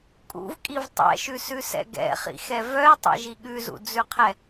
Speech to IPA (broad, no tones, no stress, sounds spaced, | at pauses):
kʼ ṵ v kʼ i v tˤ ɛ̰ ʃ ʉ s ʉ s ɛ̰ ɡ ɛ̰ χ ḭ x ɛ v œ e̯ tˤ ɛ̰ ʒ i ɠ ʉ z ṵ d͡z ʉ qʰ ɛ